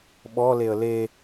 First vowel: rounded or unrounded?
rounded